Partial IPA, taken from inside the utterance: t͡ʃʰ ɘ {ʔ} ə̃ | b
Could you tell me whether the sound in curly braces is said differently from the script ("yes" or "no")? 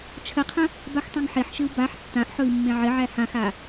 yes